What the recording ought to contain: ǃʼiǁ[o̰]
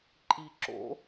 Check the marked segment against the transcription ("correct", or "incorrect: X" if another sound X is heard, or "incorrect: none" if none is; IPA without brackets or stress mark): correct